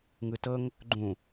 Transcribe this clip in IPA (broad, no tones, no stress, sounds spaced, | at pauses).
ŋ ɯ t ɤ ŋ | ɡ͡ǃ ũ